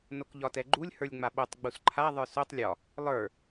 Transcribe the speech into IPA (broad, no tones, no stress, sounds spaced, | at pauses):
n o k ʎ ɒ t ɛ ɡ͡ǃ u lʲ h ə˞ lʲ ŋ͡m a ɓ o tˤ ɡ͡b u s ǃʰ a ðˤ ə˞ s o tˤ lʲ ɒ | lˠ ə˞